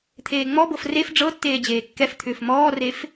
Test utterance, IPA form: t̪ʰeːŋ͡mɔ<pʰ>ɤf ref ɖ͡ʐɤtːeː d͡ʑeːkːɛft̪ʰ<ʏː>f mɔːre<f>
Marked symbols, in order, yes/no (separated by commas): no, yes, yes